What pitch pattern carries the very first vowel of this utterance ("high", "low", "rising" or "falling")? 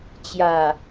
low